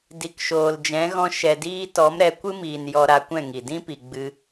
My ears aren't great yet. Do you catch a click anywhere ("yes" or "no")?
no